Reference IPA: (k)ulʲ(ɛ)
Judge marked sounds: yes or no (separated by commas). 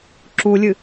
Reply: no, no